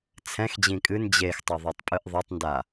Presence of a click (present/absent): absent